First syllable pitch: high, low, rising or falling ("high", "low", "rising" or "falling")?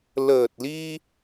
low